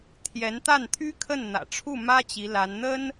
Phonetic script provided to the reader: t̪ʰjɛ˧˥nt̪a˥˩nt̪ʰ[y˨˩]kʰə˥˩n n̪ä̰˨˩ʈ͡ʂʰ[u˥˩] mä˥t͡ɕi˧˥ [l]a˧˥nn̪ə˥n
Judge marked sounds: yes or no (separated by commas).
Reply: no, yes, yes